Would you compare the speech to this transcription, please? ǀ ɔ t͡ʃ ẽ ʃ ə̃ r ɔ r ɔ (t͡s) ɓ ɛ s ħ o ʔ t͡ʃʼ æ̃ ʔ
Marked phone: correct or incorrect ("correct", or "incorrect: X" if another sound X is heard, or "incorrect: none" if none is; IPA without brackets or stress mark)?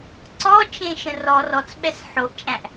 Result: correct